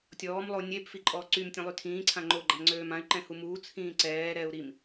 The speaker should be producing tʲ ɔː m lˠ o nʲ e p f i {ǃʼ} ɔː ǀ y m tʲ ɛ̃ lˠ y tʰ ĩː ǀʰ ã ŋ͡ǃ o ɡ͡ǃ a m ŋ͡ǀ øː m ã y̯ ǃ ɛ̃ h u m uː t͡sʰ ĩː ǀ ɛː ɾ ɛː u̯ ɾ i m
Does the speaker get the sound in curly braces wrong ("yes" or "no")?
no